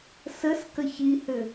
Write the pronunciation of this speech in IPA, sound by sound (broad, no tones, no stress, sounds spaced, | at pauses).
s ə s k ə ç i h ʏ